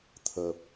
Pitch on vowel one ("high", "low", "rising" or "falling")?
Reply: low